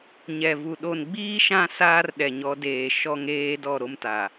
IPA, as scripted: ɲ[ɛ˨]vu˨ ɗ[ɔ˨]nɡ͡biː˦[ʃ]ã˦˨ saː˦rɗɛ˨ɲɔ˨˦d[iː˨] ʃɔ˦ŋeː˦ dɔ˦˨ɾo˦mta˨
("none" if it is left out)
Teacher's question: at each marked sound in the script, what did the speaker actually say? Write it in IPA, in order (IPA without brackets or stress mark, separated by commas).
ɛ˨, o˨, ʃ, eː˨